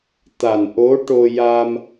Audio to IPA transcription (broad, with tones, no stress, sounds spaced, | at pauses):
t̪ a˨˩ n ʔ o˧˥ ʈ o˧ j a˧ m